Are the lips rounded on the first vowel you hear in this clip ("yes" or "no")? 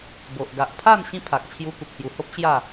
yes